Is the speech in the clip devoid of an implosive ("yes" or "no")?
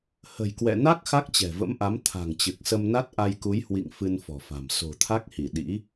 no